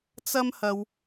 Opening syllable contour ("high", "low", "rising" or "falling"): high